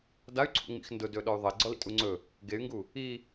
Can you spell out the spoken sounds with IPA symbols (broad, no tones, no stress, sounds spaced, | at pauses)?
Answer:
d a y̯ ǀʰ ṵ ŋ͡m ḭ x n d ʊ d ɵː ɗ ɔ y̯ ðˤ ɐ i̯ ɡ͡ǀ ɔ l ḭ tʼ u ŋ͡ǀ ɵ | ɡ e y̯ ŋ ɡ u | i